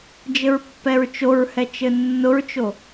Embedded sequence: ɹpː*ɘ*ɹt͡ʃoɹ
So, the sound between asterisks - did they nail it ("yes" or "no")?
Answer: no